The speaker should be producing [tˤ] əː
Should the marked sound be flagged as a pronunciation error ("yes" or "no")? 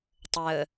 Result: no